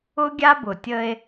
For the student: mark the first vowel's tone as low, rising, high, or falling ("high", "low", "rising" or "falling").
high